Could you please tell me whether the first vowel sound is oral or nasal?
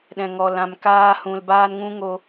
nasal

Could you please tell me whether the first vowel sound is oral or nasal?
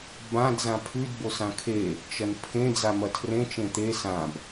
nasal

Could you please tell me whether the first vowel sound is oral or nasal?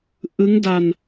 oral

